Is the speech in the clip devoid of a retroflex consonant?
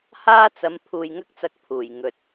yes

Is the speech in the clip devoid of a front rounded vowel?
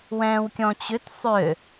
no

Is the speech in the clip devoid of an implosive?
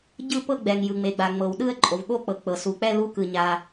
no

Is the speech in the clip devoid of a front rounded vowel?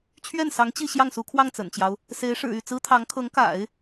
no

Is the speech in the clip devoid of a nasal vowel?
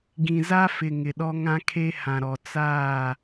no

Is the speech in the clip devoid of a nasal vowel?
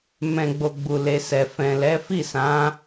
no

